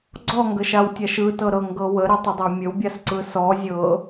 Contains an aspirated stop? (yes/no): no